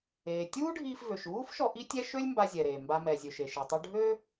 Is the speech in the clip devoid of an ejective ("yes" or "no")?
yes